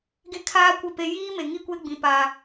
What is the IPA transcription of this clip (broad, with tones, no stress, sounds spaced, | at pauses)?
ɡ e˦ kʰ aː˦ kʷ ɪ˦˨ p e˦ j iː˦ m e˨ ŋ i˦ kʷ e˦ ɡ͡b ĩ˦ p a˦